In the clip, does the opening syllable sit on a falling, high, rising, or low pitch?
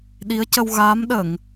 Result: rising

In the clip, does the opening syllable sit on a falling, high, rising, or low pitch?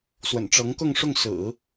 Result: low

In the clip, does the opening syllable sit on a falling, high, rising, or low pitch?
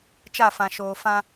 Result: falling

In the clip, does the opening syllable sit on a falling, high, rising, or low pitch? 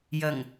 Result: low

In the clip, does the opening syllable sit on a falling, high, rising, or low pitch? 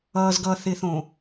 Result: low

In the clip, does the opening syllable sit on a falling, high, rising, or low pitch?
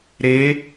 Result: rising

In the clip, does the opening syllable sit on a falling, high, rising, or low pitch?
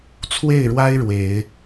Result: falling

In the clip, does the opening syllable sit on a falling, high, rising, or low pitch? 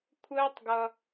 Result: high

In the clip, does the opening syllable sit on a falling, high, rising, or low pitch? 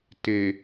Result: low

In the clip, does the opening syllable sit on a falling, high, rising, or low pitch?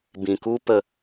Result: low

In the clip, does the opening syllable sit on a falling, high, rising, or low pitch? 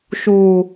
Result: low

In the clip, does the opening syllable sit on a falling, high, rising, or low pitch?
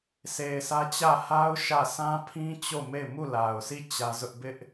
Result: low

